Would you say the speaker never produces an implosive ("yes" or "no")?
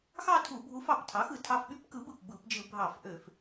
no